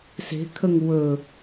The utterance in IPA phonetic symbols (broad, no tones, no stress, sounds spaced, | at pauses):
s e̤ kʰ ə ŋ w ɵ